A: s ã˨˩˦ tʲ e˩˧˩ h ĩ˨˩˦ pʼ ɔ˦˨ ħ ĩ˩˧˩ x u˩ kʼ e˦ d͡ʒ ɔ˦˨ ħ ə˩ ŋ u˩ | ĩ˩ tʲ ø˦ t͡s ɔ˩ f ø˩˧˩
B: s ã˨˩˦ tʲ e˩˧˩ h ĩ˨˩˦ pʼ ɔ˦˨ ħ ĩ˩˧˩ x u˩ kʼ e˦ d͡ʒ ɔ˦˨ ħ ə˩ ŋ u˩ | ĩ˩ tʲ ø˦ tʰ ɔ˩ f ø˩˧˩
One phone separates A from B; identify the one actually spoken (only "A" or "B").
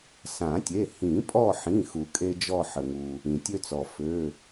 A